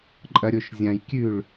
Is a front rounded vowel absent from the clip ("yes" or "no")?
yes